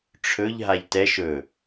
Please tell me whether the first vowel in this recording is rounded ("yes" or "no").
yes